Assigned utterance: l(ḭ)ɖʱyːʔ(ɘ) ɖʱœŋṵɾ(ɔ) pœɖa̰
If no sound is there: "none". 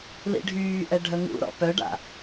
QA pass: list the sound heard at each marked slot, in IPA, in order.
ḭ, ɛ, ɔ̰

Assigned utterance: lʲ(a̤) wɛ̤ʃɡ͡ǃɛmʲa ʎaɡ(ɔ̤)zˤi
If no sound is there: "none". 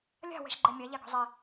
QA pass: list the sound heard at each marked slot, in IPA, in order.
a̤, ɔ̤

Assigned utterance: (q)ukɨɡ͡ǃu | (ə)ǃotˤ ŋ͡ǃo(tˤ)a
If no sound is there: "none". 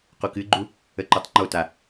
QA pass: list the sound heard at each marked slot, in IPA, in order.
q, ə, t

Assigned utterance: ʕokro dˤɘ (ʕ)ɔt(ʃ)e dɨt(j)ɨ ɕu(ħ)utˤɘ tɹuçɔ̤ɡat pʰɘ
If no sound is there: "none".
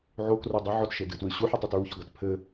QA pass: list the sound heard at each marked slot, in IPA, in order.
ʕ, ʃ, w, ħ

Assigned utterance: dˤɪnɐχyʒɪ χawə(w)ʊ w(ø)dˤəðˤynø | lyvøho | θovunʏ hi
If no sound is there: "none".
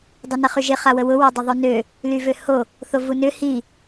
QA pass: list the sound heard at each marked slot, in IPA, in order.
w, ø

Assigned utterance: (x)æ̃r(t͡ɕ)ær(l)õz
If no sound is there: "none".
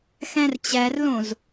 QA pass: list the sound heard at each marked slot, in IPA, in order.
x, t͡ɕ, l

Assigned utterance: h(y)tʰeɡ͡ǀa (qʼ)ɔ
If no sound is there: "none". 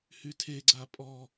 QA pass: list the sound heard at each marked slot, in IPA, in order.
y, pʼ

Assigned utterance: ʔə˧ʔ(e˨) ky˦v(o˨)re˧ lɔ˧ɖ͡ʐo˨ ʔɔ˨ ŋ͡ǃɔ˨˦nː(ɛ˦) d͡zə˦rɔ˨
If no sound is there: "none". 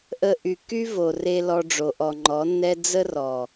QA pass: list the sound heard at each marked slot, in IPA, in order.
y˨, o˨, ɛ˦

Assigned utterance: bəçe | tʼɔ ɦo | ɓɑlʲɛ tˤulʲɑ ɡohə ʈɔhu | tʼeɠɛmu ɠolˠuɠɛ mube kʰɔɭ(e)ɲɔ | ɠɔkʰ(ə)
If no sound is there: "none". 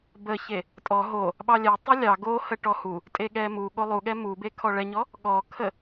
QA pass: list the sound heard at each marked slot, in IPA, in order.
ɛ, ə

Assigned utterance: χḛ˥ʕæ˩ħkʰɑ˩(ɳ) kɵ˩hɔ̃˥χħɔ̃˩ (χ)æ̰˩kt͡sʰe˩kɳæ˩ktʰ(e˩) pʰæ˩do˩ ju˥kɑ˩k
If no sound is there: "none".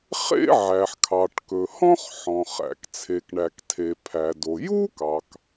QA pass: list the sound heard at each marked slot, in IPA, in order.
ʈ, χ, e˩

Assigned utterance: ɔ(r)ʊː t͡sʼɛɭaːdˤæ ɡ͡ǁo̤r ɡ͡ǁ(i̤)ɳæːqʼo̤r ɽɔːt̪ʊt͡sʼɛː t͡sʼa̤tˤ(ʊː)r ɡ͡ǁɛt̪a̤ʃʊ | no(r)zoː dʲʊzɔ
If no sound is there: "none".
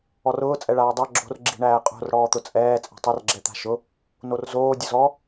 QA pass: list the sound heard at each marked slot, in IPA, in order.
r, i̤, ʊ, r

